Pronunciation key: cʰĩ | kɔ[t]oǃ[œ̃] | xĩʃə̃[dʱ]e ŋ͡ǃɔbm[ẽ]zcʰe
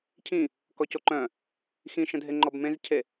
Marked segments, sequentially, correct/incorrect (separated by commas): incorrect, correct, correct, correct